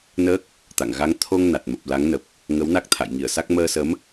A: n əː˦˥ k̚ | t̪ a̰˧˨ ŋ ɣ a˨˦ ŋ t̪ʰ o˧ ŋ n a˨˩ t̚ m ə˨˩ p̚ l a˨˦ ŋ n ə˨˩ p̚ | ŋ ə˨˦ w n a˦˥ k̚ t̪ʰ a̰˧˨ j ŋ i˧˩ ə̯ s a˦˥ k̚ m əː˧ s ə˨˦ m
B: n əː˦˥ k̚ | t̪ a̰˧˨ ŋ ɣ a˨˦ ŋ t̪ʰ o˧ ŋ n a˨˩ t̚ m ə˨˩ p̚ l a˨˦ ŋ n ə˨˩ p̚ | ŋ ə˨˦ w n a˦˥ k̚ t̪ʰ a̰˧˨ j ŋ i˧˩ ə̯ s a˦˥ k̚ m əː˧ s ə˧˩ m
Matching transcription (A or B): A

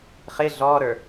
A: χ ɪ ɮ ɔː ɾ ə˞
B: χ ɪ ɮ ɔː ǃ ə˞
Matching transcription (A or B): A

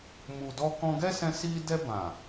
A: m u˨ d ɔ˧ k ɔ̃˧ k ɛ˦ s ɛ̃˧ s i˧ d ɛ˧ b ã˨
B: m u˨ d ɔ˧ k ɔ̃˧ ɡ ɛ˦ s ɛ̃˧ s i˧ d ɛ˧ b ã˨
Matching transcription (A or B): B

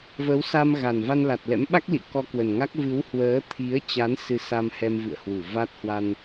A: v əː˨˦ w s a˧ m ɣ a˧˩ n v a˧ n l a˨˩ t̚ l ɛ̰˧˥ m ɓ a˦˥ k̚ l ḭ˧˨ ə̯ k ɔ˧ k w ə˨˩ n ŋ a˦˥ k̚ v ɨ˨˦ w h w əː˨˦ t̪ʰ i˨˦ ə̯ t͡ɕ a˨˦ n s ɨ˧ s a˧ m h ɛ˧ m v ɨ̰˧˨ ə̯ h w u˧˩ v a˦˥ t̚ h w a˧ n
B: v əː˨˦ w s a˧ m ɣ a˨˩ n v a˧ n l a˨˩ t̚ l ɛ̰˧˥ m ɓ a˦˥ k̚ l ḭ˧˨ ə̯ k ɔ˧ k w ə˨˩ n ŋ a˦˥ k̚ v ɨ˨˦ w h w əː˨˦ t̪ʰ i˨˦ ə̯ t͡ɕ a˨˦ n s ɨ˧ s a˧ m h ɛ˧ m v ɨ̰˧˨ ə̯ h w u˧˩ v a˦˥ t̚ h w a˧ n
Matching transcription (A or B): B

